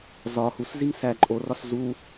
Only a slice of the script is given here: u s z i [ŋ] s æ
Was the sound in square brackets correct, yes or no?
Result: yes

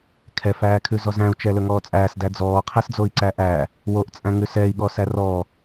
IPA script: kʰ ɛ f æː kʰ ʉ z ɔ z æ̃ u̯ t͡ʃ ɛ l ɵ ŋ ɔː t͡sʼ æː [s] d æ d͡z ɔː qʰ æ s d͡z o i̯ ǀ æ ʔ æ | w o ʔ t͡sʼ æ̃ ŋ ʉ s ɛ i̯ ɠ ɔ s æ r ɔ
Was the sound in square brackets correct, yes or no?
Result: yes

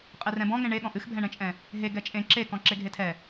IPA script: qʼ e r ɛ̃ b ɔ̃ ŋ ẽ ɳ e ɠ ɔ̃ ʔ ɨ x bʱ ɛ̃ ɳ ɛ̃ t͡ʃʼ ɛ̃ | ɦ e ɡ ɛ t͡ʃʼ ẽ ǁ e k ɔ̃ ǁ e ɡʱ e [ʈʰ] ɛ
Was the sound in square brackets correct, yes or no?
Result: no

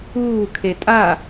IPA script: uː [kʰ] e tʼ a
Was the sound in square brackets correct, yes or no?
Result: yes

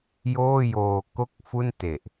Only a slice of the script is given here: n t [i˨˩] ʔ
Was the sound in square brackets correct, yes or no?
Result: no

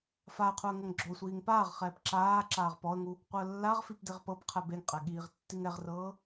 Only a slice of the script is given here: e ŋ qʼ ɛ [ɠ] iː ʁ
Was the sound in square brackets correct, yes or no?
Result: yes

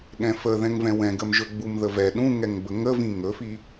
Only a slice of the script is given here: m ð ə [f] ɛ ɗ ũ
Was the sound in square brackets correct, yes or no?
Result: no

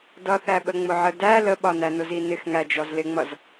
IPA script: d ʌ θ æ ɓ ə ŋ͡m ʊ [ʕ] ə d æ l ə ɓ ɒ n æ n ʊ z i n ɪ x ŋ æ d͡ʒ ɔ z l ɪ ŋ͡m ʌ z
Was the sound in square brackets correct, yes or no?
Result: yes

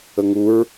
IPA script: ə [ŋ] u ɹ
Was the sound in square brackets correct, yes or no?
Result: yes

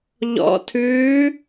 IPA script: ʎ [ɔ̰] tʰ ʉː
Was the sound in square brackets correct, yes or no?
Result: yes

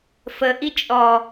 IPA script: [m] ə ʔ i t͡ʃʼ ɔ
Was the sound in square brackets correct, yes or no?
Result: no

